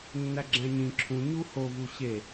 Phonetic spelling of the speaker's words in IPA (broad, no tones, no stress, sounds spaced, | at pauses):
nː æ ɡ͡ǁ æ̃ ɲ ĩ ǁʰ ũ ɲ u h o v u ɕ e